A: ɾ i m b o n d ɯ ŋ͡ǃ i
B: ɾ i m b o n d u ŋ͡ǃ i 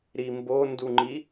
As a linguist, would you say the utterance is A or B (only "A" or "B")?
B